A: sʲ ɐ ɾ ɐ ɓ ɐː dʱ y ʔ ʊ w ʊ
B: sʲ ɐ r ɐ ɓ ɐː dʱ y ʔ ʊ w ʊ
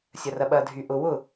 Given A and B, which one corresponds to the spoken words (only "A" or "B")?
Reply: B